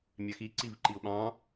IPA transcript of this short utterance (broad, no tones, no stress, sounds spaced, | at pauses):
mʲ æ x i ǀ i v ǃ i ʊ̯ ɓ ɑ̃